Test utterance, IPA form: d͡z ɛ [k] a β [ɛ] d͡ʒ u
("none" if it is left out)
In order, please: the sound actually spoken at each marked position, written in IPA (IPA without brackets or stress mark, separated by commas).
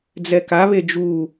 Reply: k, e